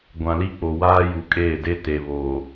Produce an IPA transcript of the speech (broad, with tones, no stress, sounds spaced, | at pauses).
ɡʷ ã˨ l i˦ k͡p o˨ w aː˦ j u˨ kʼ eː˦˨ d e˦ t e˨ β oː˨